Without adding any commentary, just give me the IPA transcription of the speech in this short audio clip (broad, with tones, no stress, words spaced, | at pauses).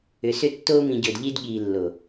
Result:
ʏ˨sʏ˧ tːoː˧mĩ˨ɟɵ˨d ʎi˧d ɠiː˨lːo˨